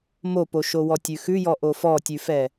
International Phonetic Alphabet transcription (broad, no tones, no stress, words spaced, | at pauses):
mopoʃowɔ tʲʉxʉjɔ ʔofɔtʲʉfɛ